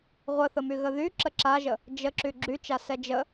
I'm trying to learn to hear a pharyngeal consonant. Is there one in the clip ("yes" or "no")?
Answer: no